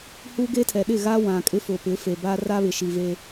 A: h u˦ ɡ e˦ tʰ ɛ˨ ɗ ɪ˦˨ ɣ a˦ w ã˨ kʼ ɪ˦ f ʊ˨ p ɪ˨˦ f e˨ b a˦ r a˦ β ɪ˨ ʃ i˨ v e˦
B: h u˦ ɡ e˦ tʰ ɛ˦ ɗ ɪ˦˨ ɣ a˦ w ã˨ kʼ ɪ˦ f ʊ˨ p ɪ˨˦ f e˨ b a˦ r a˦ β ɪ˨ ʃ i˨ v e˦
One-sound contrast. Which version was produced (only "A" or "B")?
A